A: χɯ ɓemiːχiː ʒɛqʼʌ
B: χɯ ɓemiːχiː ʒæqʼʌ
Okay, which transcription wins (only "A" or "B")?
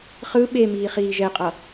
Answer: A